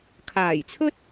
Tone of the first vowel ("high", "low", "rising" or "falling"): low